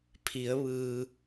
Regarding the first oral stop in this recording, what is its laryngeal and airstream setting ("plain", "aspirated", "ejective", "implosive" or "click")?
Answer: aspirated